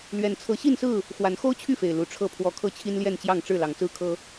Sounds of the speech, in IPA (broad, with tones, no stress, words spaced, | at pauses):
lɥɛ˨˩nt͡sʰɤ˨˦ɕi˥˨nsɹ̩˥˨ | xwa˨˦nxo˦ʊ̯t͡ɕʰy˥˨fe˨˩ɪ̯ lu˨˦ʈ͡ʂʰɤ˥˨pʰwɔ˥˨ kʰɤ˥˨t͡ɕʰi˦nljɛ˥˨nt͡ɕjɑ˥˨ŋ ʈ͡ʂɻ̩˥˨lɑ˨˦ŋt͡sɹ̩˦ kʰɤ˦